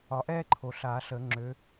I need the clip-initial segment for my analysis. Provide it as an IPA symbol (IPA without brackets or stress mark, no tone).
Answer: ɒ